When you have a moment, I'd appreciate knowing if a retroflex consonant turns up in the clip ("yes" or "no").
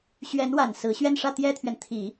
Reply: yes